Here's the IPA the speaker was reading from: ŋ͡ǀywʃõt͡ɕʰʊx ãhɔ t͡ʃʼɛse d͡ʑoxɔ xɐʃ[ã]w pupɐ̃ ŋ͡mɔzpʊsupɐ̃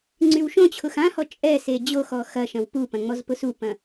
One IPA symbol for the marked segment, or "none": ɐ̃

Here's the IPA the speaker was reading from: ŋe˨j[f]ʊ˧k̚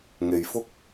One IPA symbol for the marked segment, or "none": f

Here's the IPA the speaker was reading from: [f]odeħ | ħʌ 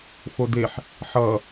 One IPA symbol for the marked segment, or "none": f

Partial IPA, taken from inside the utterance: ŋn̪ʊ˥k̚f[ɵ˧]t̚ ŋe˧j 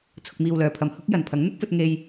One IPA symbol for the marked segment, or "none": ɵ˧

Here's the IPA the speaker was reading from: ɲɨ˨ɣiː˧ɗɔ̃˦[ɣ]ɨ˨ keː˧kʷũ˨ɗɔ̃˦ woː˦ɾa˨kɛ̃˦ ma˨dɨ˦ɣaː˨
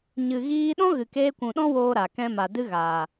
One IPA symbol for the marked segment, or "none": ɣ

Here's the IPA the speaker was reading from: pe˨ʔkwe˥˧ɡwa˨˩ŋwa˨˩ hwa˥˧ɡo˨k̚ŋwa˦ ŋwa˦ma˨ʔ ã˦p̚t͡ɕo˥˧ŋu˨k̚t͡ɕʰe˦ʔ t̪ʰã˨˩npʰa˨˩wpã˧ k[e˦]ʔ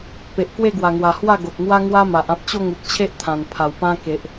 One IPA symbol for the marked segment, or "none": e˨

